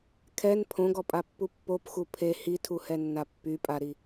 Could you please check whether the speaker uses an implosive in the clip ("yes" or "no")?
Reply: no